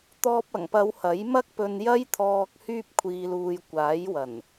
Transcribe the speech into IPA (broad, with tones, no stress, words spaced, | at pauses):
t̪ɔː˧p̚ɐ˨˩ŋpɐ˨˧w hɐ˨˥jmɐ˥k̚pɵ˧n jɐ˥jt̪ʰɔː˧k̚ hyː˧p̚kʷʰiː˨luː˨j kʷaː˨˥jwɐ˨˩n